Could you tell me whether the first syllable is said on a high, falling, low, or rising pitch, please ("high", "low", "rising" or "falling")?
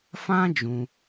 high